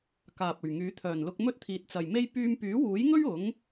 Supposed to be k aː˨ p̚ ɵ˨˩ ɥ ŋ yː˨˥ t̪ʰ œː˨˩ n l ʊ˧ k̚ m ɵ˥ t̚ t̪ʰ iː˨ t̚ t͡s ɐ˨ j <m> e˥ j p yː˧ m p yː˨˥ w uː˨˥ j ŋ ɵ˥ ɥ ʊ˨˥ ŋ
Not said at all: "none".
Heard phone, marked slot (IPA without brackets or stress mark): m